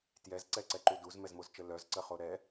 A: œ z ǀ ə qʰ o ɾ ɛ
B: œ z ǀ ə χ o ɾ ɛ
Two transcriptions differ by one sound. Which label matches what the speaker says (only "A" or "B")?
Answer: B